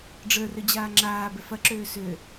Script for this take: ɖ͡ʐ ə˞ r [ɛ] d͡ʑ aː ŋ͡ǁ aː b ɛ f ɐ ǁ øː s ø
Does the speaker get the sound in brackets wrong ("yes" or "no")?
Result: yes